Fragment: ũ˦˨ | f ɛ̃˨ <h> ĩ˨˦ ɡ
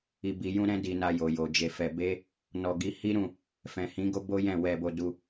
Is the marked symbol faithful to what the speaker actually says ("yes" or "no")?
yes